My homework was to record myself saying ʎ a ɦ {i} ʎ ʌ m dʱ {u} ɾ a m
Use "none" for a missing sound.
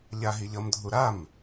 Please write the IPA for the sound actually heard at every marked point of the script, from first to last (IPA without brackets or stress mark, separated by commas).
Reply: i, u